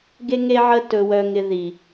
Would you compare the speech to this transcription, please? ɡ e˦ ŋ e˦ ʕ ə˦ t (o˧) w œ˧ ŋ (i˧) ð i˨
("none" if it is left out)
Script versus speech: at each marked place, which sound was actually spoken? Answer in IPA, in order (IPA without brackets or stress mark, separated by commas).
ɵ˧, ɪ˧